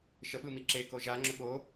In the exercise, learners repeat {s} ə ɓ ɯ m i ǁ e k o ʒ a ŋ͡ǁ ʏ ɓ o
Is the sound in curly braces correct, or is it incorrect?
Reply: incorrect